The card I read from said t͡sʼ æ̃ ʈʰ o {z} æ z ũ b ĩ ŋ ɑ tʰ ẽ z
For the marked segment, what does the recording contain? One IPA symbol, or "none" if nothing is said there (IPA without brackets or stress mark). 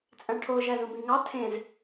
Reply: ʒ